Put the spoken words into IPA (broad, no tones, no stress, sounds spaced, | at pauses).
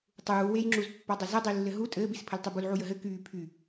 tˤ uː w e j ŋ͡ǁ u z pː a dˤ ɘ z ə dˤ i lː ɘ ɦ u tʼ ɘː b i s pʰ ɘ l tˤ y b u l ʕ u j ə ɦ ɘ k yː pʰ y